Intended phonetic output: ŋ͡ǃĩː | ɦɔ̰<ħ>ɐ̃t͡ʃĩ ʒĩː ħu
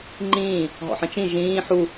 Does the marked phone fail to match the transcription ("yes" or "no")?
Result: no